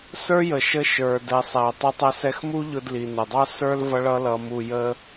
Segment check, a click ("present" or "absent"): absent